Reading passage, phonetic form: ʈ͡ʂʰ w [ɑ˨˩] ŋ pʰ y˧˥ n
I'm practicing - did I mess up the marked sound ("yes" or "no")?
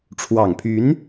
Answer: no